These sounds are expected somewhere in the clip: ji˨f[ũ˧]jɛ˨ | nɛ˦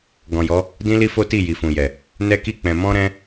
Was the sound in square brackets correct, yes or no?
no